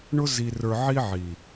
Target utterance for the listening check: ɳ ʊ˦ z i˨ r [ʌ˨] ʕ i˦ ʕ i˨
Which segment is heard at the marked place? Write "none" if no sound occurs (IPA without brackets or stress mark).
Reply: ə˞˨